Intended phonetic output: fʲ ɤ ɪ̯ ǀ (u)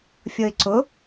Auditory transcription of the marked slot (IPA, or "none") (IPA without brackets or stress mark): ʊ